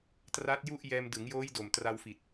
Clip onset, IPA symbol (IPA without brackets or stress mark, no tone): t